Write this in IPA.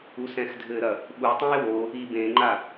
u s ɛ̃ x dʱ ɘ ɾ ɐ | ɓ u tˤ ũ ɪ̯ w o | i b ẽ ŋ͡ǃ a

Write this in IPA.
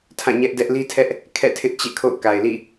tʰ ã˦˨ ɲ ɛ˦ ʔ d ɛ˦ ʔ l i˦ tʰ ɛ˦ ʔ | kʰ ɛ̰˦˨ tʰ ɪ˦ ʔ t͡ɕ ḛ˦˨ kʰ o̰˦˨ ʊ̯ k a˨ ɪ̯ l ḭ˦˨

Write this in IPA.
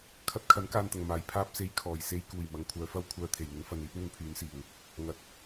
kʰ ɐ˧ t̚ kʰ ɐ˨˥ n k aː˨ n t̪ ɐ˨˩ ŋ m aː˨˩ j pʰ aː˥ p̚ s e˧ j kʰ ɔː˨˩ j s e˧ j k uː˨˩ j m ɐ˨˥ ŋ kʷʰ œː˨˧ f ɐ˥ w kʷʰ œː˨ t̪ʰ e˨˩ j ŋ ɪ˨˧ ŋ f ɐ˨ n iː˥ p̚ n̪ ɵ˧ n pʰ yː˨˧ n s iː˨˩ w | ŋ ɐ˨˥ t̚

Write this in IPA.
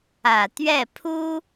ä˨˩ t̪ ɥ ɛ˥˩ pʰ u˥

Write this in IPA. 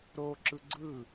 ɾ o ǁ ɯ ɡ͡ǀ ɯ

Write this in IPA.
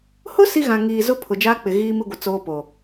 h ʊ˦ s i˦ ɣ ã˨ ŋ iː˨ z ʊ˦ pʰ ʊ˨ d͡ʒ aː˦ k͡p ɪ˨ ɣ iː˦ m i˦ ɡʷ ɪ˨ t͡s oː˦ p o˨

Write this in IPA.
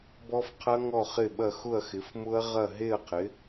b ɔ˦˥ f qʰ ɐ˦˥ ŋ ɔ˥˨ χ ɪ˥˨ ɓ ɐ˥˨ x ʊ˥˨ ɐ̯ x ɪ˨˥ f m ʊ˦˥ ɐ̯ ʁ ɐ˥˨ ɦ e˥˨ ɐ̯ qʰ ɪ˨˥

